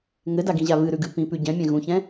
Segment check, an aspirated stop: absent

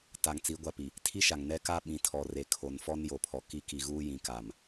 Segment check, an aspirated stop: present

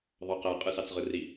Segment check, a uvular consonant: present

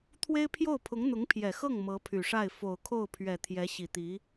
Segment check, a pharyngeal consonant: absent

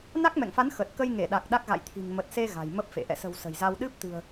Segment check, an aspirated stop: present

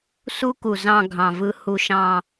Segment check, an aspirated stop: absent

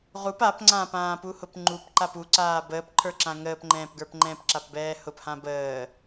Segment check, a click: present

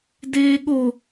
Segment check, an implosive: present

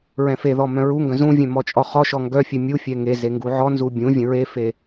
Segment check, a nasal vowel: present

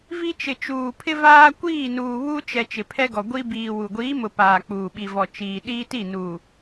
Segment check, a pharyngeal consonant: absent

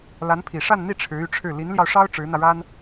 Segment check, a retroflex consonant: present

